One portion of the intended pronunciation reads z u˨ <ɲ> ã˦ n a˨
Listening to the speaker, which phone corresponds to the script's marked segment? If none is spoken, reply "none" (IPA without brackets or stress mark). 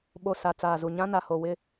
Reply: ɲ